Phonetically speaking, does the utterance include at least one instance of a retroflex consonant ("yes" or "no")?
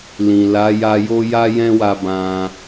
no